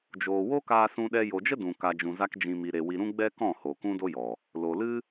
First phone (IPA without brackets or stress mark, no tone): d͡ʒ